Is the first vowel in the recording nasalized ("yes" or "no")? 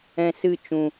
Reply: yes